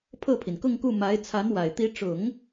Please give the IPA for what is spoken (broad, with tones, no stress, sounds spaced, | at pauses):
pʰ ɤ˥˩ pʰ i˩ n k ʊ˥˧ ŋ k u˥˩ m a˧˥ ɪ̯ t͡sʰ a˧˥ n w a˨˩ ɪ̯ t̪ i˧˥ ʈ͡ʂ ʊ˨˩˦ ŋ